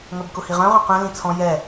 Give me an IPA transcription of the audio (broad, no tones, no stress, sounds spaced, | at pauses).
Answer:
ŋ œ b k ʊ h i ʁ œ̃ ʁ œ̃ q œ̃ l ĩ t͡sʰ ɔ̃ j ɛ